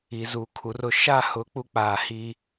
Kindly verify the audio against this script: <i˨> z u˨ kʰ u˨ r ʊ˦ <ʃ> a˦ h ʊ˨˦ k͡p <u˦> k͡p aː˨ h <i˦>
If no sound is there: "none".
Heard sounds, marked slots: i˨, ʃ, u˦, i˦

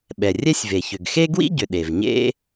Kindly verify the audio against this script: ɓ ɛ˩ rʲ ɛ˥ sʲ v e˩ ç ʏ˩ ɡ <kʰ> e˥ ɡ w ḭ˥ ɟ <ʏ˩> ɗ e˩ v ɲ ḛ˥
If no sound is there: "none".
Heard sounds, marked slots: x, ʏ˩

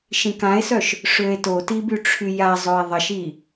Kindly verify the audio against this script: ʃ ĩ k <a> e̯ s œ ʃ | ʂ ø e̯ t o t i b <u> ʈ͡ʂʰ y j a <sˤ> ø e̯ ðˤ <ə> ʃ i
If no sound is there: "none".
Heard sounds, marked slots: ã, y, zˤ, ə

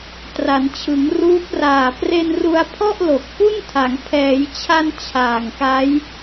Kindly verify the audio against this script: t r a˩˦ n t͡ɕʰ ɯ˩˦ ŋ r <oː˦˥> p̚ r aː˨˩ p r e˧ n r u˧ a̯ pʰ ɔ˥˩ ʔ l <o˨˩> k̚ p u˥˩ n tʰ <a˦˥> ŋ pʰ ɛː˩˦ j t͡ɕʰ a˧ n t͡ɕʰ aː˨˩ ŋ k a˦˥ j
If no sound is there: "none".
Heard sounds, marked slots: uː˦˥, o˨˩, a˩˦

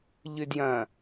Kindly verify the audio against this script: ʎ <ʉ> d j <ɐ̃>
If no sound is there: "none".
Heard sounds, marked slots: ʉ, ɐ̃

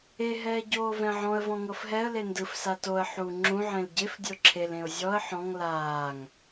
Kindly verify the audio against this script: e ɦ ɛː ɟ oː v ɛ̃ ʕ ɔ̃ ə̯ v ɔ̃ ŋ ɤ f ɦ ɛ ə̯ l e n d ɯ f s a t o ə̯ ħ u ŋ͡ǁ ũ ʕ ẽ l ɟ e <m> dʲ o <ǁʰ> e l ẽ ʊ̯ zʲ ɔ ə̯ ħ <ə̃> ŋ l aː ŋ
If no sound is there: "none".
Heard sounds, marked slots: f, ǁʰ, ɔ̃

